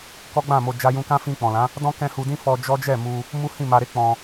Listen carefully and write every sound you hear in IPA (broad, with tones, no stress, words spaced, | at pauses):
kɔ˦ɡ͡bã˦˨mo˧ d͡ʒa˧jũ˧kã˦ fĩ˧k͡pɔ̃˨lã˨˦ | dɔ̃˦ kɛ̃˧ hu˧dĩ˦fɔ˧ d͡ʒɔ˦ d͡ʒɛ˦˨mu˧ | mu˦hĩ˦˨ma˧ɾe˦ k͡pɔ̃˧